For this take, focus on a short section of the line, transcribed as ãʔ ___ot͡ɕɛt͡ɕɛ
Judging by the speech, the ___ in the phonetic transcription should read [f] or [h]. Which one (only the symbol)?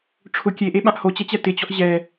h